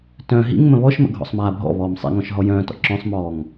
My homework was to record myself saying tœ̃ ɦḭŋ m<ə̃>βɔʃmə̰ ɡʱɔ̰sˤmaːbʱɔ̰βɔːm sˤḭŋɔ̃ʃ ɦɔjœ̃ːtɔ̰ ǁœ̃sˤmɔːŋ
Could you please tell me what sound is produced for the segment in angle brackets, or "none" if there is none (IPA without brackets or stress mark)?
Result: ə̃